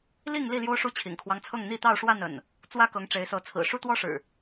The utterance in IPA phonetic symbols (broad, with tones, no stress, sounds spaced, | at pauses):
l i˥˨ ŋ l i˥˨ l j o˦ ʊ̯ ʂ u˦ t͡ɕʰ ḭ˨˩ ŋ kʰ w ɑ˦ ŋ t͡sʰ ɤ˥˨ ŋ n̪ i˥˨ t̪ ɑ˥˨ ʊ̯ ʂ w a˥˨ n ə̰˨˩ n | t͡s w ä˦ k ɤ˨˦ ŋ ʈ͡ʂ e˨˦ ɪ̯ s ɤ˨˦ t͡sʰ ɹ̩˨˩ ʂ u˦ t̪ w ɔ˦ ʂ ɻ̩˨˩